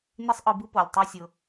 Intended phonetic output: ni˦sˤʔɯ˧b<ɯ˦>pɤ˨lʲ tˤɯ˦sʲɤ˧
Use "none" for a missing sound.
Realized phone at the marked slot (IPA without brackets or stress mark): ɯ˦